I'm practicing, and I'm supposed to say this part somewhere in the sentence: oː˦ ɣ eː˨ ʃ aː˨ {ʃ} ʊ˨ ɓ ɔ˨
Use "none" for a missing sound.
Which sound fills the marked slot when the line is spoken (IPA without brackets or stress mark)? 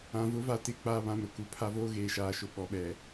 ʃ